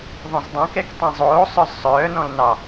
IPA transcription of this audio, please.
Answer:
ðˤ õ z dˤ õ k ɛ k tˤ ẽ zˤ oː sˤ œ z sˤ œː n ɔ̃ l n ɑ

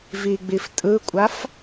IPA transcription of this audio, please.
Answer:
v i ɡ͡b i f tʼ ɯ kʷʼ a f

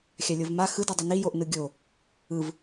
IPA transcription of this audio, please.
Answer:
xʲ a lʲ o v m a x ɯ d i dˤ ɯ n i j o ʔ n ɯ ɡʲ o | ɯ v

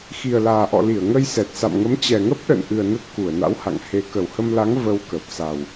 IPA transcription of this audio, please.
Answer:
x i˨˩ ə̯ l aː˨˩ ʔ ɔ̰˧˨ l i˧˩ ə̯ ŋ ə˧ j s ɛ˨˩ t̚ s a̰˧˨ m ŋ ə˨˦ m t͡ɕ ɛ˨˩ ŋ ə˦˥ p̚ ɗ ə̰˧˨ n ʔ ɨ˨˩ ə̯ n ə˦˥ t̚ k u˧˩ ə̯ n a̰˧˥ w h a̰˧˨ ŋ h e˨˦ k ə˨˩ w h ə˧ m l a˨˦ ŋ v ə˧ w k ə˨˩ p̚ s a˨˩ w

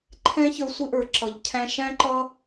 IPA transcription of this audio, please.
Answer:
ǃʰ ɛ̃˦ ç ə˞˧ sʷ ɪ˦ ʔ ə˞˨ ǁ ʌ˨ ʎ cʰ æ̃˧ ʃ æ̃˦ ǃ ʌ˦

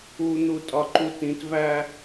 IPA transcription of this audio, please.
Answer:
u n̪ u tʼ ɒ ǃ u t ĩ t v æ

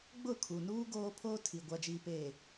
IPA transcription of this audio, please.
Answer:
ɡ͡b ʊ˦˨ kʰ u˨ n uː˦ ɡ oː˦ pʰ oː˦ tʰ i˨ ɡʷ a˨ d͡ʒ iː˨ p eː˨

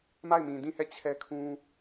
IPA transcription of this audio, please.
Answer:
m a˦˨ ɪ̯ m ĩ˨ d ĩ˦˨ h ɛ˦˨ t͡ɕʰ ɛ˦ kʰ ũ˦

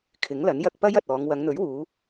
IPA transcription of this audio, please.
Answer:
kʰ ɪ˨˥ ŋ l ɐ˨˥ n j ɐ˧ k̚ p ɐ˥ j ɐ˨ t̚ ɔː˨˧ ŋ w ɐ˨˧ ŋ n̪ ɵ˨˥ ɥ w uː˨˧

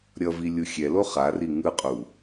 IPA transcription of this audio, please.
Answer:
ɾʲ ʌ v i lʲ u xʲ ɛ l o χ a r i ŋ ɯ qʼ u

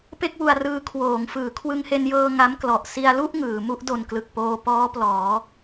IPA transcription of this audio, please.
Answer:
p e˥˩ k̚ w u˧ a̯ r ɯː˧ kʰ w oː˩˦ ŋ f ɯː˩˦ kʰ w ɯ˧ ŋ h e˧ n j ɤː˧ ŋ a˦˥ m k l ɔ˨˩ ʔ s i˧ a̯ l u˥˩ ʔ ŋ ɯː˩˦ m u˥˩ ʔ d o˨˩ n k l ɯ˨˩ k̚ p oː˧ p ɔː˦˥ p l ɔː˩˦

